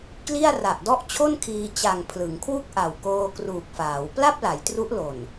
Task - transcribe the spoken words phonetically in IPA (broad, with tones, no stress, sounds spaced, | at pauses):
k l i˥˩ a̯ r a˨˩ ʔ d ɔ˥˩ ʔ t͡ɕʰ o˥˩ n kʰ iː˧ t͡ɕ a˨˩ ŋ pʰ l ɯ˩˦ ŋ kʰ w u˥˩ k̚ ʔ a˨˩ w k oː˧ k r uː˨˩ k̚ f aː˩˦ w p l a˥˩ p̚ l a˩˦ j t r u˦˥ ʔ l o˨˩ n